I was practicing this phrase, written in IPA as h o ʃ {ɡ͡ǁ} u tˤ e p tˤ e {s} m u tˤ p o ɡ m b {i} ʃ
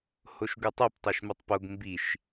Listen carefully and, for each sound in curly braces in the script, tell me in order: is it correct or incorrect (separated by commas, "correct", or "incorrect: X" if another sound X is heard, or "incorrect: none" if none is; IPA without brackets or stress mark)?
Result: incorrect: ɡ, incorrect: ʃ, correct